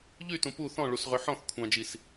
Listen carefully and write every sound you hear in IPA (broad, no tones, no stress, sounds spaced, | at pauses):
ʎ y t ũ p u θ ɔ̃ ɭ u s ʁ ø ħ ɔ̃ θ kʷʰ ɑ̃ d͡ʒ i s